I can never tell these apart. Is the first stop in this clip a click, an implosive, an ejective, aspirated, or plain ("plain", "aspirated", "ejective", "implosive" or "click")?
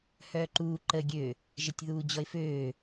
click